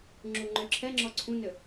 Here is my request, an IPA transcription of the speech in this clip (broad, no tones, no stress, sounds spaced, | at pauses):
ŋ͡ǁ u ŋ͡ǃ ø ǁʰ ɛ ŋ͡ǁ ɔ ǀʰ ũ n ʏ